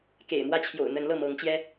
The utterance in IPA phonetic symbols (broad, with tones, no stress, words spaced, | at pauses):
kḛ˨˩ɪ̯mwä˦t͡ɕʰjo̰˨˩ʊ̯ n̪ə˨˦nlɤ˥˨mɤ˨˦ŋt͡ɕjɛ˦